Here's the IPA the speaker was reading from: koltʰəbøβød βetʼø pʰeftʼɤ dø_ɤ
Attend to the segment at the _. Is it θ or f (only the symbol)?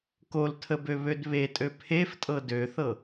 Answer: θ